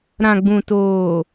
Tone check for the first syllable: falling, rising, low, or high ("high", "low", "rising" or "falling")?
low